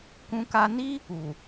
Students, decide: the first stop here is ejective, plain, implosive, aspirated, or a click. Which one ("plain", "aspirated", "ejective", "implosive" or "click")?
plain